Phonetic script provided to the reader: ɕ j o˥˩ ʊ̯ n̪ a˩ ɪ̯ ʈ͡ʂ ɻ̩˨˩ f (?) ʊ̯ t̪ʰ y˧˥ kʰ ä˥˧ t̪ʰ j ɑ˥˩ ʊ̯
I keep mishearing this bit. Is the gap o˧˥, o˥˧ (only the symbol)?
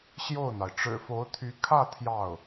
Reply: o˧˥